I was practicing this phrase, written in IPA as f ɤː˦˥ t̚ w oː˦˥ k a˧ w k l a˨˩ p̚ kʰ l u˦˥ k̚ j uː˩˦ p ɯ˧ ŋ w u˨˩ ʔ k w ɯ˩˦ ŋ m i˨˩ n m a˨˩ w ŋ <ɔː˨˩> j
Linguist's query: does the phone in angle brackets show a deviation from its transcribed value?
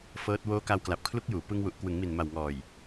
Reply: no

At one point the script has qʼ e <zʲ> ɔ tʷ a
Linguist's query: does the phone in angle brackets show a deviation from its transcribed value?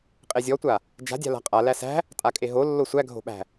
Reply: no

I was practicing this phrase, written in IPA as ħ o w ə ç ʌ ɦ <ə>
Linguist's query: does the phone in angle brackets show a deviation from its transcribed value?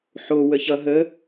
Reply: no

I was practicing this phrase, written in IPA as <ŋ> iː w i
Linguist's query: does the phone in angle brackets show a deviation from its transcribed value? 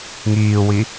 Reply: no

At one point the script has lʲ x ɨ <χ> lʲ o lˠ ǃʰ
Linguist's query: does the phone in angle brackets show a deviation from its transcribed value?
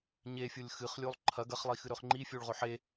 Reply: no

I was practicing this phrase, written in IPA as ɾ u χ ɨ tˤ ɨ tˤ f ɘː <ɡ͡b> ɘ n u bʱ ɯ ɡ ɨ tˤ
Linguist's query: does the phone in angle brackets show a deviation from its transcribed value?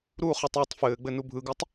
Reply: no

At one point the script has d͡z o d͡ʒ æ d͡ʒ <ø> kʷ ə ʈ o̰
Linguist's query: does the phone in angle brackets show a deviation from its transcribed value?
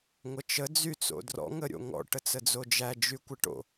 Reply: yes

